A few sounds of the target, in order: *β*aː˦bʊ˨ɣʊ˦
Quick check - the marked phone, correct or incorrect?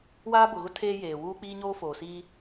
incorrect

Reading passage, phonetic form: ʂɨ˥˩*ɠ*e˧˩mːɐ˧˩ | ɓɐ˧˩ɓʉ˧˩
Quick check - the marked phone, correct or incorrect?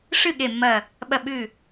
correct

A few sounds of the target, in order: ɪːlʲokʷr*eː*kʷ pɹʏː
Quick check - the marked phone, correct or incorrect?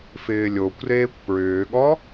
correct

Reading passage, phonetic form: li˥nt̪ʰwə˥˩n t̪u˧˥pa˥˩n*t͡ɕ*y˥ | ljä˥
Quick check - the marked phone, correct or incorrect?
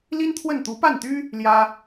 incorrect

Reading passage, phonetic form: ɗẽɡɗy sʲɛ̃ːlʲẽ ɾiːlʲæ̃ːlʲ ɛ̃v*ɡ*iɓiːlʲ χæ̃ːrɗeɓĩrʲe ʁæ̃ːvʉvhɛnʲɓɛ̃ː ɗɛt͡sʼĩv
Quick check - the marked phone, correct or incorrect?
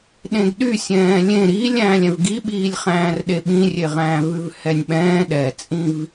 correct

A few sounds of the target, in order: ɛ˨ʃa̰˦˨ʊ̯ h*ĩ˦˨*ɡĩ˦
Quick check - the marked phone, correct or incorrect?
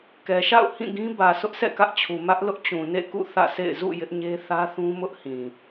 correct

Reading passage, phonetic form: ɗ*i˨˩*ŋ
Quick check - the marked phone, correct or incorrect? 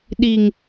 correct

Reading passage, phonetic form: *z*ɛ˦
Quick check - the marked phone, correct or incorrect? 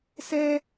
incorrect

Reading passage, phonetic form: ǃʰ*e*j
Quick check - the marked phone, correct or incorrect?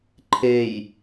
correct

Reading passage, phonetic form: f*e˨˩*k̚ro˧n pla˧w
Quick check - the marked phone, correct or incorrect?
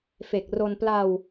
correct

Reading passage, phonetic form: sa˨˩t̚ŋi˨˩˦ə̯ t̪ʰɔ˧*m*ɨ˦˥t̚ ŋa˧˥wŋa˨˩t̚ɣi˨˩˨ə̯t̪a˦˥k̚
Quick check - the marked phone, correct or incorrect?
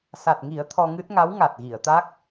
incorrect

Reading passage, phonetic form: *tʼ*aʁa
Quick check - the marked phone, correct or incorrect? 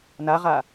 incorrect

